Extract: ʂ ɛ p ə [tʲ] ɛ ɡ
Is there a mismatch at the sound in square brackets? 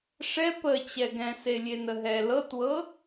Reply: yes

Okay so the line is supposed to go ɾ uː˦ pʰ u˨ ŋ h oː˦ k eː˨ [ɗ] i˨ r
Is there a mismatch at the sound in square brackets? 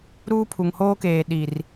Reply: no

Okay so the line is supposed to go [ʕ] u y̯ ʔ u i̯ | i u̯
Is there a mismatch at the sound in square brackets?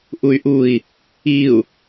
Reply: yes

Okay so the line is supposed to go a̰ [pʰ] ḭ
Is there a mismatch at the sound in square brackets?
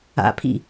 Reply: no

